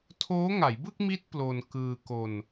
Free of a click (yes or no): yes